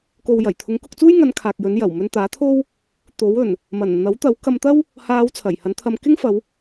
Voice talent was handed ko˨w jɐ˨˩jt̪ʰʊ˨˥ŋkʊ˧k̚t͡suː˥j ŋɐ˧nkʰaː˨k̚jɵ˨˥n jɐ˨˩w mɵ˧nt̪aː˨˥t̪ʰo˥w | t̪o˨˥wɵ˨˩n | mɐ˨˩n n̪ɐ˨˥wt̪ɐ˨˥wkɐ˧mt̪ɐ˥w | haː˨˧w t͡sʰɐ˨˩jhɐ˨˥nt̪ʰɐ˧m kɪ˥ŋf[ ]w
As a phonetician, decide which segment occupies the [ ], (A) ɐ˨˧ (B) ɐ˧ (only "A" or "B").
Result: A